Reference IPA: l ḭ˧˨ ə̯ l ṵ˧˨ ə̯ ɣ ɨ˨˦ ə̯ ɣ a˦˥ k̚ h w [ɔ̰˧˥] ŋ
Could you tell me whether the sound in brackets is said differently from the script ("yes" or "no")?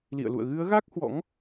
no